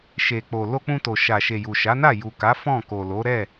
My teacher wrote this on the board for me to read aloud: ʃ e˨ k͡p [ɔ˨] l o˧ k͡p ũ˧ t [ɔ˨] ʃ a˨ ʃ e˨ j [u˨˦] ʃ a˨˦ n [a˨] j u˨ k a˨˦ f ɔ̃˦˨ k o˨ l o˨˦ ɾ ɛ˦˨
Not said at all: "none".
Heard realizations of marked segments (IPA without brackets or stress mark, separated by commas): o˨, o˨, u˨, a˦˨